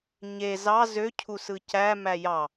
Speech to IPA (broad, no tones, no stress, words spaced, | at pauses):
ɲe zɑ zøcʰusɯ cæ mæjɑ